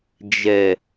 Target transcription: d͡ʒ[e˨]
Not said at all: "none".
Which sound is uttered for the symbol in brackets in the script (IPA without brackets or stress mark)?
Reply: ɛ˨